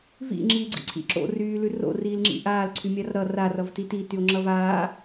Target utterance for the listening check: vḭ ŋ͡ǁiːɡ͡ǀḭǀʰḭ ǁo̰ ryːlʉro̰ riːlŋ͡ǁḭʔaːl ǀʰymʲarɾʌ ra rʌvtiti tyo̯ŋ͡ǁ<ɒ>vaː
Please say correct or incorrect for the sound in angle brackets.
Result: incorrect